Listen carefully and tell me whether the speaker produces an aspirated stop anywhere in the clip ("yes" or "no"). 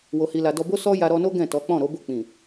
no